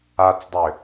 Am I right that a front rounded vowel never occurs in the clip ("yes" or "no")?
no